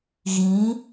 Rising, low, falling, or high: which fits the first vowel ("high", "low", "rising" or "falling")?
rising